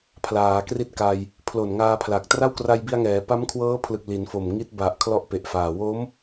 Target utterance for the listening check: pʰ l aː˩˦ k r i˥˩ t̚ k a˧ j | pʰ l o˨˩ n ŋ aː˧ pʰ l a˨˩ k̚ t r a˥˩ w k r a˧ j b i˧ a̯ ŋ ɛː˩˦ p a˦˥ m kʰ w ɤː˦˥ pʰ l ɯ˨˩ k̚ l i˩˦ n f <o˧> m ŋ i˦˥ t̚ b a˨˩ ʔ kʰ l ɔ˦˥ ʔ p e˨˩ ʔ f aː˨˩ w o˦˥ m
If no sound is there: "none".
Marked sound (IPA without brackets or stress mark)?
o˨˩